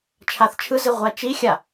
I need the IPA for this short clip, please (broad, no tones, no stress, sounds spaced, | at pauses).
t͡ʃʰ a θ t͡ʃʰ ɯ z i ʁʷ a t͡ʃ i xʲ a